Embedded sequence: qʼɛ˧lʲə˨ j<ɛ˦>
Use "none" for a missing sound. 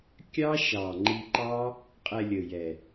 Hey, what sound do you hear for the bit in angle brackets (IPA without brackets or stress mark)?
ɛ˨